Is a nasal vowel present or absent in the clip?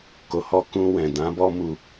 present